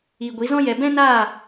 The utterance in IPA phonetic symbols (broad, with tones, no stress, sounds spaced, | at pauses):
iː˧ ɡʷ i˨˦ z ɔ̃˦ j ɛ˧ b ɛ̃˦ n aː˦˨